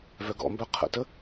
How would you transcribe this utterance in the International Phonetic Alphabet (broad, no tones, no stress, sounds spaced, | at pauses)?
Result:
v œ ɡ ɔ̰ m b œ qʰ ə̰ t ə